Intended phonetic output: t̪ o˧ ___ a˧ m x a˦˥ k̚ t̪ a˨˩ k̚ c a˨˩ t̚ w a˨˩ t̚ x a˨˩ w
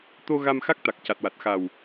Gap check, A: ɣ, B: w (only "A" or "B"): A